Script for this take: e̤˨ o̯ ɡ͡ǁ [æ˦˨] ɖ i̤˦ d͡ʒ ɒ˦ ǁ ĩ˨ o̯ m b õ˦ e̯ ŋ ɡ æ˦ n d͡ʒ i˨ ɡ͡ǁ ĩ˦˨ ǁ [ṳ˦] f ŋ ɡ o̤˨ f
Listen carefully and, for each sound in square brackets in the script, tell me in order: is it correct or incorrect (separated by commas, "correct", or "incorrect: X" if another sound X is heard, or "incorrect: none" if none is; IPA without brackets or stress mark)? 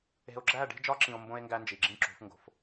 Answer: correct, incorrect: ṳ˨˦